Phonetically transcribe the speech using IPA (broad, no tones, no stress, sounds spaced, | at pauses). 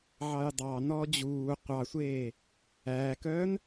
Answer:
ʕ ɑ j dˤ ɑ n ɔː d͡ʑ uː qʷ ɑ sʷ eː | æː k œː n